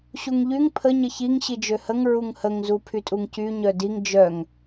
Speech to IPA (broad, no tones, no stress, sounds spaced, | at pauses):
ɕ u ŋ ʎ y ŋ pʰ ə ɲ ə ç i ŋ ɕ i d͡ʒ ø h ə ŋ ɹ u ŋ h ə ŋ z u pʰ y tʼ u ŋ c y ɲ œ d i ŋ d͡ʒ œ ŋ